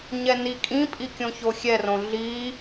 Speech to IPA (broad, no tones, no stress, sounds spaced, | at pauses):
ɲ ɛ n i kʼ ĩ pʼ i kʲ õ ç o xʲ ɛ r õ ɮ i